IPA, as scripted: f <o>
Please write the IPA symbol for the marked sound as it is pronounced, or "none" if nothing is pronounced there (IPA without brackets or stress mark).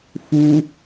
u